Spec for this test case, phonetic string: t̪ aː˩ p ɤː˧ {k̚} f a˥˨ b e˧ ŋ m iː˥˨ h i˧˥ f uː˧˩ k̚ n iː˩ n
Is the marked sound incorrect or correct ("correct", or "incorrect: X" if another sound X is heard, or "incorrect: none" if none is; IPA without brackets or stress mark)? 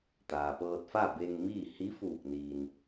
incorrect: t̚